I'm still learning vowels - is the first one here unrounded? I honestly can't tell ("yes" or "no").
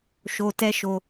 no